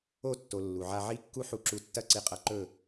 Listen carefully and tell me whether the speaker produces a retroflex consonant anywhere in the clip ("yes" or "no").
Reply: no